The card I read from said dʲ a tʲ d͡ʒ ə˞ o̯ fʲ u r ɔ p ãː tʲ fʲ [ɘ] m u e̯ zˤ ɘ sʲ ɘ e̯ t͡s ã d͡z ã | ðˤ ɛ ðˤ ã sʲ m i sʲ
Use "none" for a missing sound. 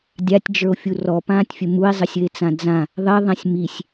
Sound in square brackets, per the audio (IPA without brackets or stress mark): ɘ